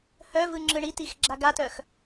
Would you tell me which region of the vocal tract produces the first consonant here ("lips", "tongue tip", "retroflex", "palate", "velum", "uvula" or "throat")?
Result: throat